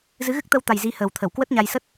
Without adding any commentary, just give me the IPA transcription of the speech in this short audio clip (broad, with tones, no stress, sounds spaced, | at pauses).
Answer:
z ɨ˨˦ ɣ ɨ˦˥ k̚ t̪ ə˧ w t̪ a˨˩ j z i˨˦ h əː˨˩ w t̪ʰ ə˧˩ w k w ə˦˥ t̚ ɲ a˧ j s ə˦˥ t̚